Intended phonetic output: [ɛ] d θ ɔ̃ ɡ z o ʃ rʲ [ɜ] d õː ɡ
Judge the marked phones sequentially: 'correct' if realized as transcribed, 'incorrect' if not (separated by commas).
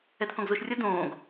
correct, correct